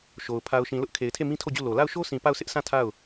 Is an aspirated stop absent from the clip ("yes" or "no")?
no